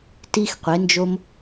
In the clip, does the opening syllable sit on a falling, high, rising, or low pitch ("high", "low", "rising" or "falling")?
high